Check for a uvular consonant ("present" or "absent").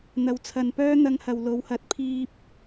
absent